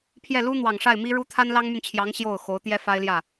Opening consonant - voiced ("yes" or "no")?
no